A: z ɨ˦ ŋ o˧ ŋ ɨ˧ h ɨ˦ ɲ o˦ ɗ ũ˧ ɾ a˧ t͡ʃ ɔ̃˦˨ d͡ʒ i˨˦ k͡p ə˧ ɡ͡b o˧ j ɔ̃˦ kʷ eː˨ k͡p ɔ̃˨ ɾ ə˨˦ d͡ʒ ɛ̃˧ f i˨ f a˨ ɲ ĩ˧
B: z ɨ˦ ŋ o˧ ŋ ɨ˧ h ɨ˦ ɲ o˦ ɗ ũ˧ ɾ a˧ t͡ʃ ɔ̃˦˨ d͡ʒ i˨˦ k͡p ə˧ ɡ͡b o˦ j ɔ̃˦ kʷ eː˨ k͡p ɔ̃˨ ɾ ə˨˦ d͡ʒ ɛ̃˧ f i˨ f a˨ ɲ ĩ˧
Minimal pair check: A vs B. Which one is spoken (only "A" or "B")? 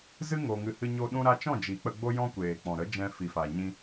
B